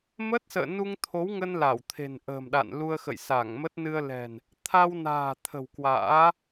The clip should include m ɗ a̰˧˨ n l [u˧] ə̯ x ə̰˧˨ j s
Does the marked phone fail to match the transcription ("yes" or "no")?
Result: no